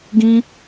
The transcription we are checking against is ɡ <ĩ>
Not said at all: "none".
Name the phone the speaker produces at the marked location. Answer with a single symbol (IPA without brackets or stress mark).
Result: ĩ